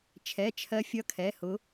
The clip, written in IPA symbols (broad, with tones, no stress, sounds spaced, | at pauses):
t͡ʃʰ ɛ˩˧˩ t͡ʃʰ ɜ˨˦ fʲ ʌ˨˦ kʰ ɛ˩˧˩ h ʊ˨˦